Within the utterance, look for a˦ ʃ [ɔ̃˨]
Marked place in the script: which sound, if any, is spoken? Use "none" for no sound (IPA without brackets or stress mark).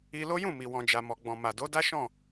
ɔ̃˦˨